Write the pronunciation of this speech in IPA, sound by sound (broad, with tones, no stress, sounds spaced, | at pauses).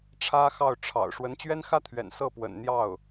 ʈ͡ʂʰ ä˥ x ɑ˥˩ ʊ̯ ʈ͡ʂʰ ɑ̰˨˩ ʊ̯ ʂ w ə˧˥ n t͡ɕ ɥ ɛ˥ n x ä˥ t̪ʰ ɥ ɛ̰˨˩ n s ɤ˥˩ p w ə̰˨˩ n n̪ j ɑ˥˩ ʊ̯